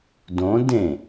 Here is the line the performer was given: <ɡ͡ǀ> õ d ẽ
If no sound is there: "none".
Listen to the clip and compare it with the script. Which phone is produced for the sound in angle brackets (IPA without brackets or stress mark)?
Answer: d